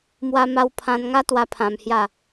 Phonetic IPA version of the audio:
m w a˦ m a˦ w pʰ ã˧ n ŋ a˦ t̪ w a˧ pʰ ã˧ m h j a˥˧

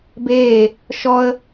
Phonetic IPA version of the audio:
b eː | ʃ ɔ ə̯

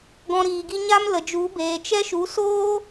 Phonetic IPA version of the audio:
ɡ ɔ̃˧ ɾ iː˨ ɡ i˦ ɲ a˦ m l ə˨ d͡ʒ u˨˦ b eː˨ t͡ʃ ɛ˦ ʃ u˨˦ s oː˦

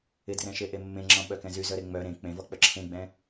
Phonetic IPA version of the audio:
ɪ d r ɛ̃ ʃ e ʔ e mː ẽ ŋ͡ǁ ɔ̃ ɓ œ k ɛ̃ z y z œ ɾ e ŋ͡m œ ɾ ẽ k͡p ẽ v ɔ k͡p œ ǁʰ ẽ ɡ͡b ɛ̃

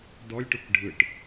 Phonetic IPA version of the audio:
d ɔ lʲ ʈ u k ɖʱ ɯ ʈ

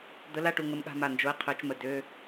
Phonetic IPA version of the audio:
d̪ ə˨˥ l a˥˩ ʈ u˥˩ ŋ ə˦˥ m ɠ a̤˧˥˧ m a˥˩ n d͡ʒ o˨˥ e̯ qʰ ø˨˩˦ t͡ʃ m ə˨˩ d ø˧˥˧

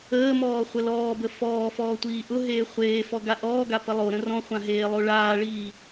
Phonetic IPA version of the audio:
əː m ɔː χʷ ə l ɔː b ə f ɔː f ɔː tʷ iː ʔ ʊ ɦ eː χʷ eː f ɔ ɡ a ʔ ɔː ɡ a p ə lˠ o ɾ ə̃ r ɔ̃ χʷ ã ɦ eː lˠ o ɭ aː ɭ iː

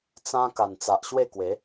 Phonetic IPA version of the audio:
t͡s ã˦ k a˨˩ n t͡s a˨ ʔ ɕ w e˥˧ k w e˨˦

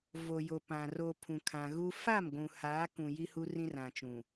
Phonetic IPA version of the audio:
v o˨ j o˨ p ã˨ r o˨ pʰ ũ˨ kʰ ã˨ ɣ u˦ f a˦˨ m ɡʷ ũ˨ h aː˨˦ k ũ˨ j i˦ h u˦ r ĩ˦ r ã˨ t͡ʃ ũ˨

